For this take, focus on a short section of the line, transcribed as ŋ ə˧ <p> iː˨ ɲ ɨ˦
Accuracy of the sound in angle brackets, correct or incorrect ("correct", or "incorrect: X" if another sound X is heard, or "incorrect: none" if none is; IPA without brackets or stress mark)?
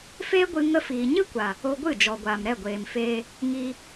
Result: incorrect: f